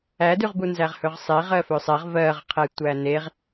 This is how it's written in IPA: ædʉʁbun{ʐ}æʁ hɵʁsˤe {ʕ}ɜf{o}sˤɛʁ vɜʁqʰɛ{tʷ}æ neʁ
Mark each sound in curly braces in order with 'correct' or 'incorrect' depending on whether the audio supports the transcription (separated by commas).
incorrect, incorrect, incorrect, correct